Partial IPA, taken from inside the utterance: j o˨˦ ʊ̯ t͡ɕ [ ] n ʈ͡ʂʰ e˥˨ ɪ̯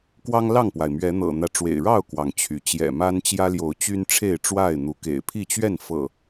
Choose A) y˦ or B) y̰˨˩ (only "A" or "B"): A